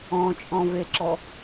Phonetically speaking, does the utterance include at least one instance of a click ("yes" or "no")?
yes